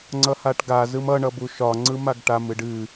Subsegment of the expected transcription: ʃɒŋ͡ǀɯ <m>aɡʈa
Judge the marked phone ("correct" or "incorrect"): correct